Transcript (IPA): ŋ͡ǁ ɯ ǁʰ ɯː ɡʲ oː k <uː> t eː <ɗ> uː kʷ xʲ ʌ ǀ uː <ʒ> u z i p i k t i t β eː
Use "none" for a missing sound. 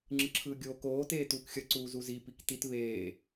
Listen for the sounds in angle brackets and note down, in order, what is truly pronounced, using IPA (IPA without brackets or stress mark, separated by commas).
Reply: oː, t, z